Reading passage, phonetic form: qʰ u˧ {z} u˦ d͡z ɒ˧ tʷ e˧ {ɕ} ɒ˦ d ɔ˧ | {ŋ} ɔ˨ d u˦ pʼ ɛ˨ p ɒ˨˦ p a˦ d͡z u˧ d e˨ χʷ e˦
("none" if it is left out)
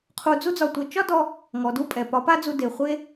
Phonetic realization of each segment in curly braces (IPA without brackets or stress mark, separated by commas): d͡z, t͡ʃ, ŋ